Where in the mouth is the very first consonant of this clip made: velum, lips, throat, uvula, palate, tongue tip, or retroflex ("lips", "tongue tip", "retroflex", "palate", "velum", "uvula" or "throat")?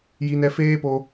palate